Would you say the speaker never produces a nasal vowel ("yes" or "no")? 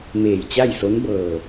yes